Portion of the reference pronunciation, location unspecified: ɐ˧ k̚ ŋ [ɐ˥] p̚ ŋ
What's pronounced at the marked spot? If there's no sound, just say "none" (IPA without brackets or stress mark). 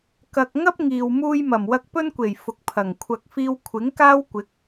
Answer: ɐ˥